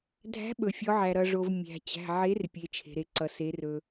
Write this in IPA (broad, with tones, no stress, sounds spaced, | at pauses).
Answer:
dʱ æ̤˨˥ ɓ ɵ˩ fʲ ɔ˩˧ ʕ æ˩ ɾ ʌ˩ ʐ o˩ v mʲ æ̤˩ t͡ɕ æ̤˩˧˩ ʕ e˨˥ r pʲ e˩˧ t͡ʃʰ e̤˩ ɾ e˩ ǀ ʌ˩ s e˩˧ r ɵ˩